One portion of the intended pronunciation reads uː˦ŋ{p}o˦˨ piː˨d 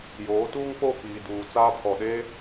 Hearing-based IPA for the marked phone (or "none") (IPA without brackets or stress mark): k͡p